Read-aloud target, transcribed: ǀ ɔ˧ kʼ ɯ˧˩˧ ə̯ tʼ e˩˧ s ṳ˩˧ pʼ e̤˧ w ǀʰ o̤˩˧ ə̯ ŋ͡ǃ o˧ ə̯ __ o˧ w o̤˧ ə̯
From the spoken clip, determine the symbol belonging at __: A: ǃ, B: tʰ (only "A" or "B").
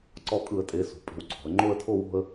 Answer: B